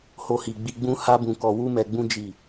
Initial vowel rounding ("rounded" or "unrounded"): rounded